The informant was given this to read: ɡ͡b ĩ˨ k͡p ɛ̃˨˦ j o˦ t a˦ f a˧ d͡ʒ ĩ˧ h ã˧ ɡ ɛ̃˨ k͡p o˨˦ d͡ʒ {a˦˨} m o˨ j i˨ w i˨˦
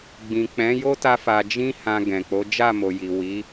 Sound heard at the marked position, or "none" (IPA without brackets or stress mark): a˦˨